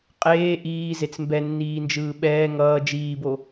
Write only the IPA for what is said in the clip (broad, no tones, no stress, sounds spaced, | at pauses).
qʼ eː ʔ iː z e t͡s m b ɛ nː iː n d͡ʒ ɯː ɓ ɛː ŋ ʌː d͡ʒ iː b o